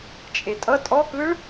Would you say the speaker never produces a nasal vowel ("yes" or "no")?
yes